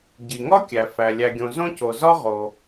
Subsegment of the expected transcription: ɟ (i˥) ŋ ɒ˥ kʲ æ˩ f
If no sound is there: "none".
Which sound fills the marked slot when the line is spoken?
i˩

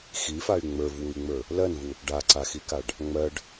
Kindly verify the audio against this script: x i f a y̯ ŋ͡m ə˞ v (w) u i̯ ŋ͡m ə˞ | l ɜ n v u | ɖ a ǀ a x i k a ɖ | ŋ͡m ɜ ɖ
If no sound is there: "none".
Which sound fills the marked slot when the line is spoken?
w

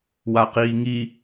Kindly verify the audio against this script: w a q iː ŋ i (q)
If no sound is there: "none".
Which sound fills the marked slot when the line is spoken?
none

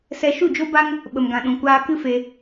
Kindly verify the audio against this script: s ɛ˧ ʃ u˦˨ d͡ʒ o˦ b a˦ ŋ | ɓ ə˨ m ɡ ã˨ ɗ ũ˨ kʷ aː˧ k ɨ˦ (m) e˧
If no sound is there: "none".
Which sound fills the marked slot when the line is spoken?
f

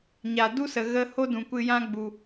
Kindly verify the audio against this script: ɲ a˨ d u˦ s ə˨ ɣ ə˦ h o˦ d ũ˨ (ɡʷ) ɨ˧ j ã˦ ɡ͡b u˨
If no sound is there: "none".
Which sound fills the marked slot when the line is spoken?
kʷ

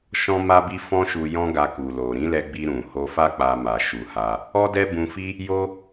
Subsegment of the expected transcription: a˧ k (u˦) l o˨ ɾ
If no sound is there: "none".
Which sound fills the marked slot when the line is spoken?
u˨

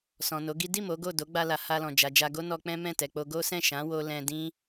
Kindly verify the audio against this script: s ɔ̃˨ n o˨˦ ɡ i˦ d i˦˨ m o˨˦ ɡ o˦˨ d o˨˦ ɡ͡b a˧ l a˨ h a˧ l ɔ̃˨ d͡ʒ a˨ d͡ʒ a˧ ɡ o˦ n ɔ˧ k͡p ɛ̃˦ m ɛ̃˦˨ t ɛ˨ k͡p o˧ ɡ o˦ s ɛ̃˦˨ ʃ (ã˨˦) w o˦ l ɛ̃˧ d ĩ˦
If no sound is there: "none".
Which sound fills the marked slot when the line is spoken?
ã˨˦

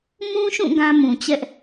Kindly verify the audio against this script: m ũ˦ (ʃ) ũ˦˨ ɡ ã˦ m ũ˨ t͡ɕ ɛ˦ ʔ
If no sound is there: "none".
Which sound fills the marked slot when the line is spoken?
ʃ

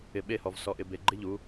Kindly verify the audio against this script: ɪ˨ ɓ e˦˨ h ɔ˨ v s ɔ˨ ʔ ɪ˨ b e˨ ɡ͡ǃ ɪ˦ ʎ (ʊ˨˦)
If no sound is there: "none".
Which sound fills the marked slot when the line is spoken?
u˨˦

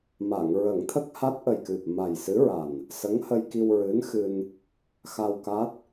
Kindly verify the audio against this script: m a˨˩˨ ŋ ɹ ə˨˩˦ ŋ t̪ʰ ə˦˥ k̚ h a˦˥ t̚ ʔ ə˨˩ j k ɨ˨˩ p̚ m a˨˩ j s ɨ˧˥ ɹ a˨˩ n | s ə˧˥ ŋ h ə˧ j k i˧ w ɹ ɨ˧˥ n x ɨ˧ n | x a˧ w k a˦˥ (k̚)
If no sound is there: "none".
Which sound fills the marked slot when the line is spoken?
t̚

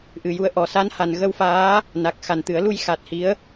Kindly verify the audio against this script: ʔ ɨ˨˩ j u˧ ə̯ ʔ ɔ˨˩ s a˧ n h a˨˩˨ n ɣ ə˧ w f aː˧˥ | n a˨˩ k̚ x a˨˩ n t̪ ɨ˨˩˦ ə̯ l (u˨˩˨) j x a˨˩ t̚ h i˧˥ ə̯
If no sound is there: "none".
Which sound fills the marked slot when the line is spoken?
u˧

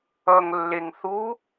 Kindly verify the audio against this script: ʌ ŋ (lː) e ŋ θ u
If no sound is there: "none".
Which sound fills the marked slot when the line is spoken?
lː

